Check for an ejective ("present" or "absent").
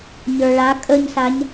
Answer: present